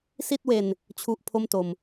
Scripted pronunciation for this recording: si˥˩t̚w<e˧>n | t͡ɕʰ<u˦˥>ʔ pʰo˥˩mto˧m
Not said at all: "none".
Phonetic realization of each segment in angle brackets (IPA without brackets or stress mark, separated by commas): e˧, u˦˥